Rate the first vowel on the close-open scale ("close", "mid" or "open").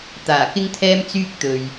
open